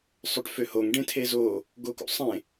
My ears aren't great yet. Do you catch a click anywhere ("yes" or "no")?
no